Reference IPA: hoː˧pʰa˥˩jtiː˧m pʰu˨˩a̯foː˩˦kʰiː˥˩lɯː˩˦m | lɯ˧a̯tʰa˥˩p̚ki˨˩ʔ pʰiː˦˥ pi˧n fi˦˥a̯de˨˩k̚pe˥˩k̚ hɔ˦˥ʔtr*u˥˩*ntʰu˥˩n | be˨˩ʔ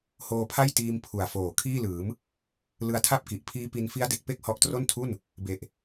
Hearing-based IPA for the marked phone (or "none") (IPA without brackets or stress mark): o˥˩